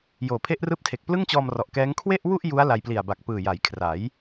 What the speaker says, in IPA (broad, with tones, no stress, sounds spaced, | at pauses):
j oː˨˩ pʰ e˦˥ ʔ r ɯː˦˥ p̚ tʰ e˨˩ k̚ p l ɯ˥˩ ŋ t͡ɕ ɔː˧ m r ɔ˨˩ ʔ k ɛː˦˥ ŋ kʰ w e˥˩ ʔ w u˥˩ ʔ j u˦˥ a̯ l a˧ j p l i˨˩ a̯ b a˨˩ k̚ p ɯː˨˩ j a˩˦ j kʰ r a˩˦ j